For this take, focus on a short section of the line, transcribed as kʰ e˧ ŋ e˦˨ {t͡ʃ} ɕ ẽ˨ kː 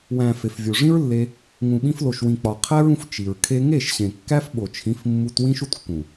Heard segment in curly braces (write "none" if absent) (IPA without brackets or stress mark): ʃ